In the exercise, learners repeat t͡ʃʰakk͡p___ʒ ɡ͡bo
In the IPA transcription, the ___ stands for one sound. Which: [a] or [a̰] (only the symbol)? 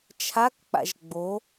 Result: a̰